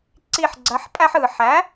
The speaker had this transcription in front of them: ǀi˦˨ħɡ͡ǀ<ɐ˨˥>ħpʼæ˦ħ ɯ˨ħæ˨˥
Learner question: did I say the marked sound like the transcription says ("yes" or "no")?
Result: yes